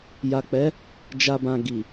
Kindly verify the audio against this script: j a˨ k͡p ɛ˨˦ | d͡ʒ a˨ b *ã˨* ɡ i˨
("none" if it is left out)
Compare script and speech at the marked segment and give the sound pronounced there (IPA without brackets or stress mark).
ã˨